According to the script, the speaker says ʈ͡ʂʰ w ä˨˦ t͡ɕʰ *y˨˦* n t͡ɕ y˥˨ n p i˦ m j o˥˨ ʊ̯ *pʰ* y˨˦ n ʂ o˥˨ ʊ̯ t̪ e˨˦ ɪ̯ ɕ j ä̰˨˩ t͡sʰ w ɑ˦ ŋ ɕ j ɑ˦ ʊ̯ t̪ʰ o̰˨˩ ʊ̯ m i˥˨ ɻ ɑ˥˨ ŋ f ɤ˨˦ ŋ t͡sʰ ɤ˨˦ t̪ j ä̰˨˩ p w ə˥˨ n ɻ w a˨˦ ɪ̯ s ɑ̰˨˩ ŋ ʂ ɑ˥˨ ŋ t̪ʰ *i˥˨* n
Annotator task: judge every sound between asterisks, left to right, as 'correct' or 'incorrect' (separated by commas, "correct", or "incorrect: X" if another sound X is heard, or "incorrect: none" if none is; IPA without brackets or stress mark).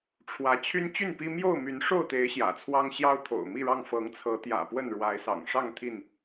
incorrect: y˦, incorrect: m, correct